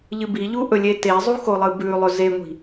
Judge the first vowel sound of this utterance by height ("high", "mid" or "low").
high